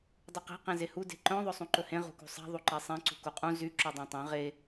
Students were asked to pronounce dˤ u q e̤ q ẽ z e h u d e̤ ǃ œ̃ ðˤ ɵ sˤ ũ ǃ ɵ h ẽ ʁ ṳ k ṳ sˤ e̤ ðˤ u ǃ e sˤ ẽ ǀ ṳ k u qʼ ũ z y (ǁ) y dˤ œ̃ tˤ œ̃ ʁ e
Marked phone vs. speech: correct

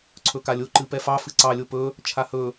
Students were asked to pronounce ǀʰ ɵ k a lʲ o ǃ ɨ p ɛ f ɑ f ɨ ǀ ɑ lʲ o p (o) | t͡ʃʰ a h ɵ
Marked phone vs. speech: incorrect: ɵ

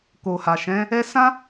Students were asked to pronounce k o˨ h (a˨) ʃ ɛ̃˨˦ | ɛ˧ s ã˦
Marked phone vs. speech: correct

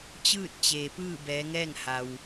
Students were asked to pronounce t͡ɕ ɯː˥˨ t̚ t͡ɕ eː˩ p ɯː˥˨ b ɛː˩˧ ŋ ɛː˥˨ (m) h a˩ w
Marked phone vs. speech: incorrect: ŋ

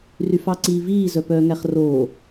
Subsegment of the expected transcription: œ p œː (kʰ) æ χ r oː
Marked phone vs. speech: incorrect: ŋ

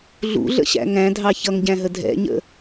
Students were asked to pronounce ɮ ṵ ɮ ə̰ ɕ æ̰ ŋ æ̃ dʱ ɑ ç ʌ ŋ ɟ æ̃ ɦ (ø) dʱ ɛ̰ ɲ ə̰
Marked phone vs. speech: incorrect: ə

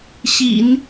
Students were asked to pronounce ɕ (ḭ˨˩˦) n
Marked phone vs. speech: correct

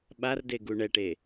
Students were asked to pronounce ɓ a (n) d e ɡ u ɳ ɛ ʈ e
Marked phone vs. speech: incorrect: r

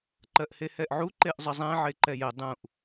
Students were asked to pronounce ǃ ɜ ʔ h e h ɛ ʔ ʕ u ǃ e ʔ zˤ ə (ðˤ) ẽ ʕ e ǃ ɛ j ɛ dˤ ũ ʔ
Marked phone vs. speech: incorrect: zˤ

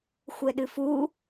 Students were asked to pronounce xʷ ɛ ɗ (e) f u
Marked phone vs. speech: incorrect: ɨ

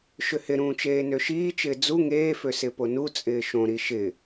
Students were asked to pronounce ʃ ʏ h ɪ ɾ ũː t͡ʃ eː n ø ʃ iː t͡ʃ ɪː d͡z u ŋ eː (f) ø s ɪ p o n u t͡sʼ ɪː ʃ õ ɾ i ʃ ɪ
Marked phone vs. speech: correct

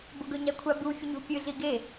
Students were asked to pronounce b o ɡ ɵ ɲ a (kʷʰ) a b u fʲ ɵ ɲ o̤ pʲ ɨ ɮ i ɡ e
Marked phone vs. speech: correct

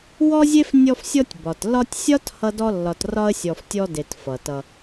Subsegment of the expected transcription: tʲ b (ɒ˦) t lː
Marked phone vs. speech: incorrect: ɒ˩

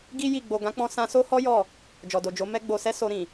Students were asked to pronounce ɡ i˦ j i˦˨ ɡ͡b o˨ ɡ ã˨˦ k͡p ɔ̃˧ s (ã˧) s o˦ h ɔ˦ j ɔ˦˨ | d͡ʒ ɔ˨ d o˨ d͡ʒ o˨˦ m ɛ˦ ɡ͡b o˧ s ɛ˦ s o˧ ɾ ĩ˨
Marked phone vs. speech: correct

